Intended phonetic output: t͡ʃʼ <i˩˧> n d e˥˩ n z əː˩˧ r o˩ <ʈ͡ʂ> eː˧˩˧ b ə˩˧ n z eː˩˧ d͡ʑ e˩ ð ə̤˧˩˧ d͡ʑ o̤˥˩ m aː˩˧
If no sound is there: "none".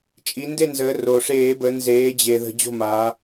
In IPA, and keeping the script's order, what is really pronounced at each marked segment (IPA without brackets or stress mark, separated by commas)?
i˩˧, ʂ